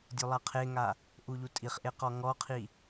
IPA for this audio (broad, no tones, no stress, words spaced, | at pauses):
dʲulˠaqʰeŋa | ʔuʎutʼiχʔe qɔŋɔqʰi